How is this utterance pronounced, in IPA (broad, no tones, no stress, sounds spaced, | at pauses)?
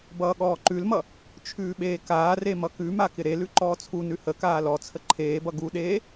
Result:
b ʌː ɠ ɔː ǃ ʉ l m ʌ | t͡ʃʰ ʉː ɓ eː k aː r e m ʌ k ʉ m a k ɪ ɾ e l ʉ ǃ ɔː t͡sʰ u n ʉ h ə k aː l ɔ t͡sʰ ə ǃʰ eː b ʌ ɡ u ɗ eː